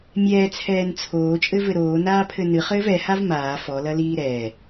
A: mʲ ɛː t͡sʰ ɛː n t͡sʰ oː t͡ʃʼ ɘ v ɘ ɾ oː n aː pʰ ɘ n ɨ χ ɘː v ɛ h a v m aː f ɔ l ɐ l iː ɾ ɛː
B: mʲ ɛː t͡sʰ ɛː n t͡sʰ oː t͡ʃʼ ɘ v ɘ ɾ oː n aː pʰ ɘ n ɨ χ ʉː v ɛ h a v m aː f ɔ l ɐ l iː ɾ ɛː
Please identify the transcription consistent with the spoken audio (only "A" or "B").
A